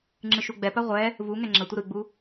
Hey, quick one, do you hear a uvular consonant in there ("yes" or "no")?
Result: yes